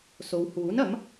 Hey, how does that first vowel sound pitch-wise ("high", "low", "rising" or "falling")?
low